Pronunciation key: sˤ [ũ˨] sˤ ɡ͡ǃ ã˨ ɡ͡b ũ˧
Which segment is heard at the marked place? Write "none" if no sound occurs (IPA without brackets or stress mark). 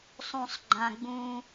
ũ˨